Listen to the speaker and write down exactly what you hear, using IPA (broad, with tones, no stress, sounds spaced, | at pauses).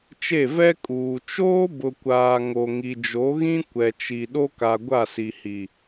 t͡ʃ e˦˨ v ɛ˦ kʼ uː˨ t͡ʃ oː˦ b ʊ˨ kʷ aː˨ ŋ o˨ ŋ i˨ d͡ʒ o˨˦ ɣ ĩ˦ kʷ ɛ˨ t͡ʃ i˨ ɗ o˦ k a˨ ɡʷ a˦˨ s i˨ h i˨